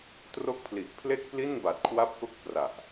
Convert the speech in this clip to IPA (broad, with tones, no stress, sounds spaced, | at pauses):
t r o˦˥ k̚ pʰ l i˨˩ ʔ pʰ l e˥˩ k̚ p l i˥˩ n b a˨˩ t̚ kʰ w a˦˥ p̚ k o˦˥ k̚ p r a˨˩ ʔ